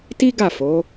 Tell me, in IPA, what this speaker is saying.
ti˦ɡa˦˨fo˨˦

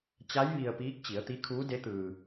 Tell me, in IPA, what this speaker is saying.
t͡ɕa˧˥j ʋi˧ə̯piː˧˥k̚ t͡ɕi˩˧ə̯t̪i˧˥ kʰuː˧˥de˧˥ t̪ɯː˧

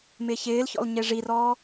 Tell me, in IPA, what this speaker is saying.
mɪːçɪːlçɔ̰l ɲeʐirɔː

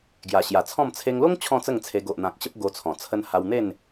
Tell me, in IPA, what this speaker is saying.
ɡja˨˩ɕja˨˩t͡sʰɔ̃˥˧m t͡sʰe˧ŋlo˦ŋ t͡ɕʰɔ̃˥˧t͡sə˥˧ŋt͡sʰe˧ ɡo˨ʔn̪ã˨k̚ ɕə˦p̚ɡo˧t͡sʰɔ̃˨˩ t͡sʰə˧nha˧w n̪e˥˧n

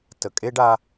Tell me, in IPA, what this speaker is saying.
tə˨ kʼe˦ɖa˧

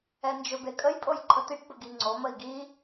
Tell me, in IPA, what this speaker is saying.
ɛnd͡ʒɵbekʼəj pʼojǃʰət̪iʈ bəɡiŋ͡ǀo məi̯ɡi

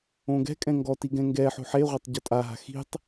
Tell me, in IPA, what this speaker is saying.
õɡɛ̤kʼɛ̃ ŋɡɔti ɡɛ̃ŋɡɛħo̤ ħeʁʷɪtˤ ɟɔtʼaɦa̤ xi̤tˤ

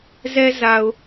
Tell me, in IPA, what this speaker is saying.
zɛ˦za˨ʊ̯

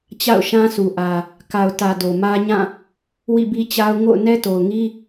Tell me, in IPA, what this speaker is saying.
t͡ɕa̰˦˨ʊ̯ʃã˦sʰu˨ ʔä˨ | ka˨ʊ̯tä˨ do˨mä˦ɲã˦˨ | wḭ˦˨bi˦t͡ɕa˦ʊ̯ ŋo̰˦˨ʊ̯nɛ˦to˨ʊ̯ŋi˦

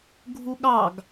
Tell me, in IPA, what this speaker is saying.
ɡʱuɠɑɡ

